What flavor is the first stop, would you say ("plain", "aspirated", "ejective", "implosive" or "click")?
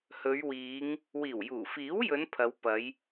aspirated